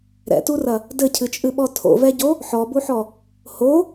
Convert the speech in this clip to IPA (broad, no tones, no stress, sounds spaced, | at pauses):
ɾ ɛ̰ t u r ɐ | d ɘ cʰ ɨ t͡ʃʼ ɨ ɓ ɔ tʰ o̰ v ɛ ɟ o | ħ ɔ b u ħ ɔ | h o